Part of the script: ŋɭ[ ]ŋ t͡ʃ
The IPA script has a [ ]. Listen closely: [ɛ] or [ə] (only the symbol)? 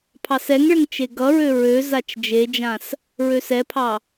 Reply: ə